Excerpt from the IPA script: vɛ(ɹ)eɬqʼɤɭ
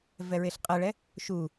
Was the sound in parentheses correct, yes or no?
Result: yes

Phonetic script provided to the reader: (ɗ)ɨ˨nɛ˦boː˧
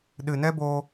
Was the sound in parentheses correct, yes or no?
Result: yes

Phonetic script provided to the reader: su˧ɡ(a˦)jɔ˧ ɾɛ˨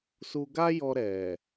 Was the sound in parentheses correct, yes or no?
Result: yes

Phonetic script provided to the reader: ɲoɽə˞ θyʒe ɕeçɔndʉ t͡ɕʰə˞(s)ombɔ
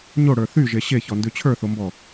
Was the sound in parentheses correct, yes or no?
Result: no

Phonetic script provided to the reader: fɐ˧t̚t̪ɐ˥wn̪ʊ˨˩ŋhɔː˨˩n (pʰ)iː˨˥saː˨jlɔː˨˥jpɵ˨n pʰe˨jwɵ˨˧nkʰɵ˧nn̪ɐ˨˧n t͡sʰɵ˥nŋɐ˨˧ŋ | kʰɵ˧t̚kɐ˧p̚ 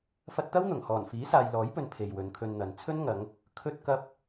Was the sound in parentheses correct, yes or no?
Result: no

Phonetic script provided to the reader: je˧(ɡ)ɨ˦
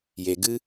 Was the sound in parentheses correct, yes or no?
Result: yes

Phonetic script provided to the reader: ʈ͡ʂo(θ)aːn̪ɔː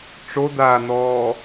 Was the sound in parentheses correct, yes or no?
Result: no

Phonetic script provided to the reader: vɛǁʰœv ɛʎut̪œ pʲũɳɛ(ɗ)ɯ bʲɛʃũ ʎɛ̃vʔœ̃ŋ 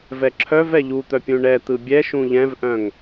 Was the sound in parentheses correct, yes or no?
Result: no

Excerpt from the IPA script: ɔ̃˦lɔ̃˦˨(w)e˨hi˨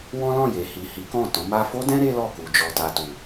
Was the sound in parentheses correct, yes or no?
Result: no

